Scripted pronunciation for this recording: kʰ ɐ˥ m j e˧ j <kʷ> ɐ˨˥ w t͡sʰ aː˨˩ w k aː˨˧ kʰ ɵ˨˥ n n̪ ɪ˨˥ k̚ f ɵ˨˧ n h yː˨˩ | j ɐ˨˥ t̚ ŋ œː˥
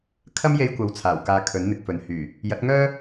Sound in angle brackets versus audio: correct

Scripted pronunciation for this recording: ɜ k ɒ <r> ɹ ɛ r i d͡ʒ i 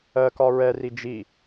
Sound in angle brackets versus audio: incorrect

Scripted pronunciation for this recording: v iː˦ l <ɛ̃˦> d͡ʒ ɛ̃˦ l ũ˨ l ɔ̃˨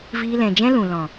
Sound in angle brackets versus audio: incorrect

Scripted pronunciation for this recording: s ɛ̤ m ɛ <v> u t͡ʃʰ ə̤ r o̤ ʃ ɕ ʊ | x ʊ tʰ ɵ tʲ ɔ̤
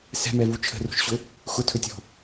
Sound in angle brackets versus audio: correct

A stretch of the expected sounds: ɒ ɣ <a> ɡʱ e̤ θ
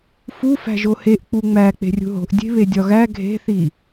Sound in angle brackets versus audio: incorrect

